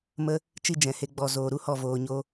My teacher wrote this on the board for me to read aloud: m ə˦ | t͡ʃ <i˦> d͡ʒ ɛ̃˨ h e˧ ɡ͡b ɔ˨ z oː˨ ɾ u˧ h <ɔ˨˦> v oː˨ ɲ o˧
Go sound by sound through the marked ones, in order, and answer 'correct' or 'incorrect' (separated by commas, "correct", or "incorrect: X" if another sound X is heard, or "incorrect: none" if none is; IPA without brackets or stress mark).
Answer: correct, incorrect: ɔ˦˨